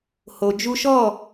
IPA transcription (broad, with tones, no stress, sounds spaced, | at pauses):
h o˨ d͡ʒ u˦ ʃ ɔ˦˨